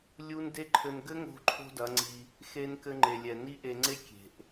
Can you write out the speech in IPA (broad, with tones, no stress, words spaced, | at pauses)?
lʲu˧n de˦ǃʰɘ˧n ɡɘ˦ ŋo̤˦ǃʰo̤˦dɐ˨˦ŋ͡ǀi˧ | xe˧nkɘ˧ ŋ͡ǃe˨lʲɛ˨ ni˦ʔe˧ ŋ͡ǀe˦ kʲe̤˨ʔ